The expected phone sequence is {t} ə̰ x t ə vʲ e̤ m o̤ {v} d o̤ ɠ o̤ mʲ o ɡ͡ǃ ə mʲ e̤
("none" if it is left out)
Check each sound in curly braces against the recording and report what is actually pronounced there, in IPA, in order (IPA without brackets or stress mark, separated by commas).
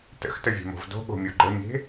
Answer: t, v